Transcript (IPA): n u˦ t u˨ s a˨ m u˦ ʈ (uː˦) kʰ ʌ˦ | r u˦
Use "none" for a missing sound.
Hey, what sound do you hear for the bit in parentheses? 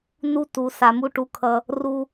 u˦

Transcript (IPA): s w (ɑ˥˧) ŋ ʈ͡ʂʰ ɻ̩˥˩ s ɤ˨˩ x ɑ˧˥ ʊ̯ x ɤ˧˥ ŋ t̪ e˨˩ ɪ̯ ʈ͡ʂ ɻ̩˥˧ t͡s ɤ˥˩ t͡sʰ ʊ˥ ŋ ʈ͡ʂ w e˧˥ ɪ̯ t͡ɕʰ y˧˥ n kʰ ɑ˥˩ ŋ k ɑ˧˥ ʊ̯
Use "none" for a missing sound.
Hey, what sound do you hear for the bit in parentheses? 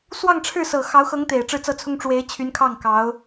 ɑ˥˧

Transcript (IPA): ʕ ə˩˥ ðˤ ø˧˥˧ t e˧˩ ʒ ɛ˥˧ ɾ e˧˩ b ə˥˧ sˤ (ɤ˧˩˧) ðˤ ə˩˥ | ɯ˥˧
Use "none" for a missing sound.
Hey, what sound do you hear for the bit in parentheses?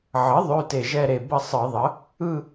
ɯ˧˩˧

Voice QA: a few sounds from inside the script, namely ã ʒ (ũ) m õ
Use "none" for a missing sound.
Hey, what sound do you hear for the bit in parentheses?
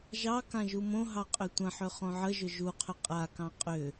u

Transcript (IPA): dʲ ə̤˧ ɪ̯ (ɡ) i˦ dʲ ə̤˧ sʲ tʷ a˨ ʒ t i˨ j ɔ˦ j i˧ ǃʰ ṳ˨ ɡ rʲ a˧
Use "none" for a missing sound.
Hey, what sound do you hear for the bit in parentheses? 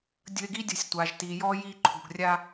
ɡ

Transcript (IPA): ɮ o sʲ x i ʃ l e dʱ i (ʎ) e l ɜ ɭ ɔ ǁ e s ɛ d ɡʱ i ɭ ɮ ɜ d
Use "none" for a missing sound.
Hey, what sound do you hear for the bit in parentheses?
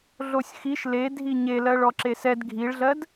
ɲ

